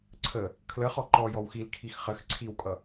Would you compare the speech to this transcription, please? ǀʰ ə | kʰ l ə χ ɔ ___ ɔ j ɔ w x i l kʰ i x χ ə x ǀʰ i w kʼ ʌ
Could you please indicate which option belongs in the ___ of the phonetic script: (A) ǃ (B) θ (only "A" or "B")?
A